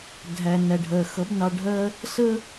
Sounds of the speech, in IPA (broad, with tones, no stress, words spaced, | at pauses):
dʱæ˩næ˩ɖʱɜ˩ xʌ˩˥b nɑ˧ɖʱɜ˥ | sə˥